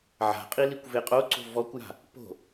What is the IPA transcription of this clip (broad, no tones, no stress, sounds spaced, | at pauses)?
ʕ a̤ qʼ i l i kʷ v e qʼ o ǀ o̤ v ɔ kʷ j a̤ | p o̤